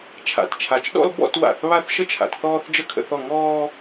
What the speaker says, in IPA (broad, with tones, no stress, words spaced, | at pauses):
t͡ʃʰa̰˧˩tt͡ʃʰa˧˩t͡ʃɗɔ̰˥l bɔ̰˥˧twa̰˧˩θ βa˥˧θʃə˥t͡ʃʰa̰˧t θɔː˥θd͡ʒə˥kʰə̰˥˧θɔ˥˧ ŋɔː˥